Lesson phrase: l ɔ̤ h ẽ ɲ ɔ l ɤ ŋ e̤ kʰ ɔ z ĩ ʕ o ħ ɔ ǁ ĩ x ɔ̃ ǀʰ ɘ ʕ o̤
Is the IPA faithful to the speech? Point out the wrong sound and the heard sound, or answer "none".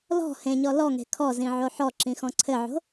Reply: ɤ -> ɔ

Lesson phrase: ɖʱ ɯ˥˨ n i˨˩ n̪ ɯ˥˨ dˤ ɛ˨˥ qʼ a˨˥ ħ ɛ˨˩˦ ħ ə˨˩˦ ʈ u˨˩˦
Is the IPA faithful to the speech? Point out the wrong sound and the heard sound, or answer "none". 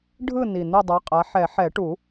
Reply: ə˨˩˦ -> ɛ˨˩˦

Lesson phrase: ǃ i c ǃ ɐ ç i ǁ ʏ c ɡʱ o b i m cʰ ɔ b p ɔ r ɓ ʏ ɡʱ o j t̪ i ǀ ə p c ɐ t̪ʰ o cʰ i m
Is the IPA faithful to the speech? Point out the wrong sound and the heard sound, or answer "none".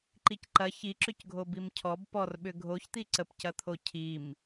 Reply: j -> ç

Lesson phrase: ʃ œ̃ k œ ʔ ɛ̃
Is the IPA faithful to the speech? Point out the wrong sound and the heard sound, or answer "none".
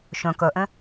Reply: none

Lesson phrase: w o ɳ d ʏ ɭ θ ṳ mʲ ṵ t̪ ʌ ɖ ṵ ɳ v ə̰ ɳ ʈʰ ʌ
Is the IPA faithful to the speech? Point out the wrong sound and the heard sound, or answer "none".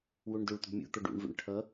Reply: θ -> t̪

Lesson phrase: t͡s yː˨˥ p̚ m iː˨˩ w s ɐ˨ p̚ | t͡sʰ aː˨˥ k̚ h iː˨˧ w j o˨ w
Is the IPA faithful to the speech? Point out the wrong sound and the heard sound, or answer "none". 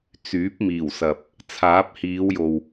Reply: k̚ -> p̚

